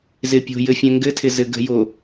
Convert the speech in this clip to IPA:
z ɪ pʲ o̤ j ɘ fʲ ɛ̃ ŋ ɡ ɘ tʰ ɪ z ɘ ɡ ə̤ j o

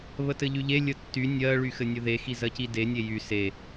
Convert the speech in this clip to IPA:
β ə t ɘ ʎ y ʎ e lʲ ə tː y nʲ ɜ ɭ y x ɘ nʲ ʊ ð e x i z ɜ c i d e nʲ e j y s e

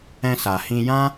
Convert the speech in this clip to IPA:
ɛ̃˧ s a˨ h ĩ˧ j ã˦

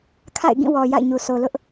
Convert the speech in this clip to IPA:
kʰ a̰˦˨ ɪ̯ ɡ ĩ˦˨ w ɔ˨ j a̰˦˨ ɪ̯ ɲ u˨ s o˨ l ʊ˦ ʔ

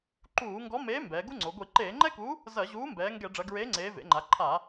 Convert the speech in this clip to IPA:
ǃ uː˧˩˧ ŋ ɡ ɔ˨˥ m eː˨˥ m b ɛː˩˧ ɡ u˥ ŋ͡ǀ o˩˧ ɡʷ i˧˩˧ ǃ eː˧˩˧ ŋ͡ǃ ɛ˥ k u˨˥ | z ɐ˧˩˧ ʑ uː˨˥ m b ɛː˩˧ ŋ ɡ ɛ˧˩˧ ɖ͡ʐ ɐ˩˧ ɡ ɹ eː˨˥ ŋ͡ǀ eː˩˧ v ḛ˩˧ ŋ͡ǃ a˩˧ ǃʰ a˧˩˧

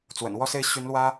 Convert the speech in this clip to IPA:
t͡s w ə̰˨˩ n w ɔ˥˧ s e˥˩ ɪ̯ ɕ y˧˥ n l w ä˥

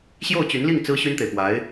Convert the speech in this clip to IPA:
ɕ j o˥˩ ʊ̯ t͡ɕ y˧˥ n l i˥˩ ŋ t͡s ɹ̩˥ ɕ y˥ n t̪ e˨ ɪ̯ p w a˧˥ ɪ̯

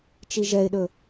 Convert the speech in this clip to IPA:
t͡ʃ i ʒ ɛ ɪ̯ ɗ ɵ

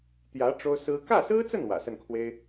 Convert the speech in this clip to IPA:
t̪ j ä˧˥ ʈ͡ʂ o˥ ʊ̯ s ɹ̩˥ k ä˥˩ s ɹ̩˥ t͡s ə˥˩ n w ä̰˨˩ s ə˥˩ n kʰ w e˥ ɪ̯

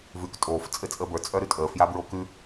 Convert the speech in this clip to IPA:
v ʉː k tʼ oː f t͡sʼ ɘ t͡sʼ əː b ə˞ t͡sʼ œ ɾ ʉ tʼ əː f j a b ɹ o k ʉ

